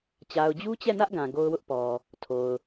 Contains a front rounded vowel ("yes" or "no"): no